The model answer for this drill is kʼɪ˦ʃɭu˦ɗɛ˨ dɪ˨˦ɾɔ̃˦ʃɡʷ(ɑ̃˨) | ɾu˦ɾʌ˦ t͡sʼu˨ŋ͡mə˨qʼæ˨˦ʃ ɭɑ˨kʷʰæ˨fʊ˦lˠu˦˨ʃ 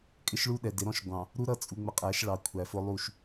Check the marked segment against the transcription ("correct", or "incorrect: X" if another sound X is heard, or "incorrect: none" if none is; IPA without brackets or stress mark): correct